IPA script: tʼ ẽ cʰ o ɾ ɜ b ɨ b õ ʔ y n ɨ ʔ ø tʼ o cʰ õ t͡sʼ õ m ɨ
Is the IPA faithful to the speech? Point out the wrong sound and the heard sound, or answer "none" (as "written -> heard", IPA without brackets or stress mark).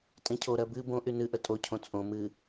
ø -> ə